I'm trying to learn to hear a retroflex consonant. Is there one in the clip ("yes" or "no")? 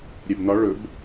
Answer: yes